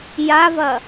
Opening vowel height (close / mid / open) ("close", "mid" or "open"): open